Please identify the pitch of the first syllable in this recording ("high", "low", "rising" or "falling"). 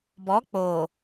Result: rising